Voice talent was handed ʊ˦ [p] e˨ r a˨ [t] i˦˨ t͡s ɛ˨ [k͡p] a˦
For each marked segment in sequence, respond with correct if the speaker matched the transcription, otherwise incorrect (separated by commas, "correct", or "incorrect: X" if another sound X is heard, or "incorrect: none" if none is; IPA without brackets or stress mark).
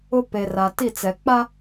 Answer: correct, correct, correct